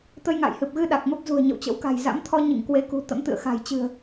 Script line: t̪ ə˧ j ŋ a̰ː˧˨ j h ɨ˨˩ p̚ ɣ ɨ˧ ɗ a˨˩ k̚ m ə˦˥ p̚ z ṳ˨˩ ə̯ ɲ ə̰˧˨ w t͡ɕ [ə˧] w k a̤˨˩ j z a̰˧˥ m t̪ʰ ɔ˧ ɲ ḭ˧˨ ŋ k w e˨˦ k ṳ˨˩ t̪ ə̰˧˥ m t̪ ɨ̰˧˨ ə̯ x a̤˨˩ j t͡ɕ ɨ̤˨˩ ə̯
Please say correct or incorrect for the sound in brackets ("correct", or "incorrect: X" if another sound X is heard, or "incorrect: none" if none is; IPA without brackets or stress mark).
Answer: incorrect: ə̰˧˥